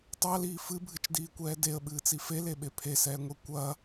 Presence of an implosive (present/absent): present